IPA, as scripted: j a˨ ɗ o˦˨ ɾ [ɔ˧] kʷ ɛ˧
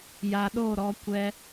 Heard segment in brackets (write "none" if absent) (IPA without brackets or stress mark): ɔ˧